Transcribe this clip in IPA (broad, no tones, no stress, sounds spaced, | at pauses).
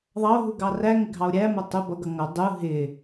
ðˤ ɑ o̯ ɦ u ɡ ɑ r æ ŋ ɪ ɡʱ ɑ o̯ ɾʲ æ m ʌ tˤ ʊ b ʌ ɡ ʌ ŋ ʌ dˤ u ɦ ɪ